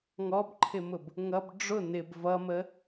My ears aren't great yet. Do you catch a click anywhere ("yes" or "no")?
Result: yes